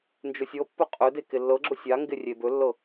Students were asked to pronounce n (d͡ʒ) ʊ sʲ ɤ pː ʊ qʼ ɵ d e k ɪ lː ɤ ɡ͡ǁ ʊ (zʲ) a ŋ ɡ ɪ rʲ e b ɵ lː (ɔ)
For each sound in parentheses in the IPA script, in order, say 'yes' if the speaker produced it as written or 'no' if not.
yes, no, no

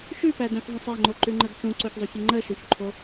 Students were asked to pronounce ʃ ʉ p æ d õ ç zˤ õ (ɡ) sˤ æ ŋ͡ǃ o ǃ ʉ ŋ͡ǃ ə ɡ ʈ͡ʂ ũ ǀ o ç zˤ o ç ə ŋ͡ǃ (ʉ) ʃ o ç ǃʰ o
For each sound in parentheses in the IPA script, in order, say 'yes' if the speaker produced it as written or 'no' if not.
no, no

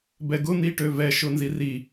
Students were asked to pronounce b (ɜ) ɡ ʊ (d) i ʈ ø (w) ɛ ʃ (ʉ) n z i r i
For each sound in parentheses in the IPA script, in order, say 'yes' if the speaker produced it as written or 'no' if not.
no, no, no, no

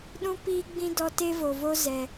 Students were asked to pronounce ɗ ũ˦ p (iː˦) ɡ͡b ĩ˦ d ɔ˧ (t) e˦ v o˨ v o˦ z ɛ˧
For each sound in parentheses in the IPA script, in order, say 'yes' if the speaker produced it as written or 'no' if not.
yes, yes

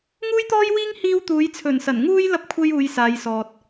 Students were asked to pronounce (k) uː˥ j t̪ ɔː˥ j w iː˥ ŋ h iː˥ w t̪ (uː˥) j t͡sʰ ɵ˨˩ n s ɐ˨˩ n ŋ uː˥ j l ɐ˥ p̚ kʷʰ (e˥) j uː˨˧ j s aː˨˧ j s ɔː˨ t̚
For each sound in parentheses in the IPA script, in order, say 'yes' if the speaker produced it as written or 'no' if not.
no, no, yes

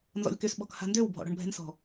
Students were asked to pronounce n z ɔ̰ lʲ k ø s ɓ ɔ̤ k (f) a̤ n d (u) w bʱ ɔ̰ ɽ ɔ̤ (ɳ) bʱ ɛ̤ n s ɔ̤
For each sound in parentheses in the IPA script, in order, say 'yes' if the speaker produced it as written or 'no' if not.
no, no, yes

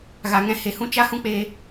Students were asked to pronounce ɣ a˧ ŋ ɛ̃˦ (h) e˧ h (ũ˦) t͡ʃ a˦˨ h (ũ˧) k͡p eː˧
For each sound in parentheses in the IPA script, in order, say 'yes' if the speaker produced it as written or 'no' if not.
yes, yes, no

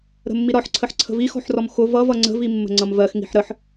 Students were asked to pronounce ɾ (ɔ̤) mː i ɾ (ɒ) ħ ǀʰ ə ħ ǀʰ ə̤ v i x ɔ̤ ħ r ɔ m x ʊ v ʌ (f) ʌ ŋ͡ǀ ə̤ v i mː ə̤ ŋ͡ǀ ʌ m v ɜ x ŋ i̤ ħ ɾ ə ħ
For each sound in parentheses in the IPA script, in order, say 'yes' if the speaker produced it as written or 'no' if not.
no, yes, no

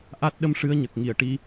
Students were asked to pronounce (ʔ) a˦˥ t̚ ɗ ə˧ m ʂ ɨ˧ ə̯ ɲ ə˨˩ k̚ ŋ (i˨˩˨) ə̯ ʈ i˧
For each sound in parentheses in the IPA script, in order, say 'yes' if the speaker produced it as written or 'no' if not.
yes, yes

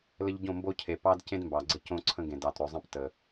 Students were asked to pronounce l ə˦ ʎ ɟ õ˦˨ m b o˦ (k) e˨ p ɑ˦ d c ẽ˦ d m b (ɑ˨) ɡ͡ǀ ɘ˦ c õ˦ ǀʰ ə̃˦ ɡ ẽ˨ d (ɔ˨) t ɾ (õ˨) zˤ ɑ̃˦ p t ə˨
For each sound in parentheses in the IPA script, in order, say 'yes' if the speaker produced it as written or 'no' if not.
no, yes, no, no

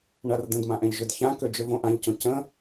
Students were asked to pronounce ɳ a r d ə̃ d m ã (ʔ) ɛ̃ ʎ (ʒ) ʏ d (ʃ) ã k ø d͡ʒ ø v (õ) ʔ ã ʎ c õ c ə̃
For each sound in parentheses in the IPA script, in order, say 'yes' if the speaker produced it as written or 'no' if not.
yes, yes, no, yes

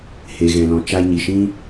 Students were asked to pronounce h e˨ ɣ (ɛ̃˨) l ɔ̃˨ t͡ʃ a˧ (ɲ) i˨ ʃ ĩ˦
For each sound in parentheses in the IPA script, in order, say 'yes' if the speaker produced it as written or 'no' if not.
yes, yes

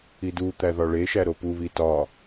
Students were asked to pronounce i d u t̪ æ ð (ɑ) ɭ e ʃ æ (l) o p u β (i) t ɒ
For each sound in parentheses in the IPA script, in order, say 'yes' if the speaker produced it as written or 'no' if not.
no, no, yes

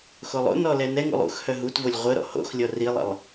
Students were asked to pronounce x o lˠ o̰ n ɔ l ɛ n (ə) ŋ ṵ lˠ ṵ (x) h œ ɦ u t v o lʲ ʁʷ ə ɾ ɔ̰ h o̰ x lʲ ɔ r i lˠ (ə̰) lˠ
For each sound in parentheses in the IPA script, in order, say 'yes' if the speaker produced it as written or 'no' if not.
no, yes, yes

